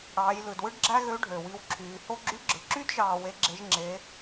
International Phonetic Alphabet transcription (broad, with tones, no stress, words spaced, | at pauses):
ɽɑː˩˧jlɯ˩dwɯ˥ɖ ɡ͡ǁæ˥ɣø˧˥ɖʱø˩ wi˧wǁʰyː˩˧ho˥ ɡ͡ǁy˧˥ɡ͡ǁɯ˩˧ǁy˥d ʒɑː˧we˧˥ɡ͡ǁe˧˥ʒ ŋ͡ǁe˧˥